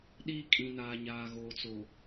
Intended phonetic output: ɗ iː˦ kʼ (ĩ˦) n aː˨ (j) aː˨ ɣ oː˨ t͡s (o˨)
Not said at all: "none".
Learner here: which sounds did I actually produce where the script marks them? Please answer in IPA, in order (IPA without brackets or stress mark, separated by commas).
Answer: ĩ˨, ɲ, o˨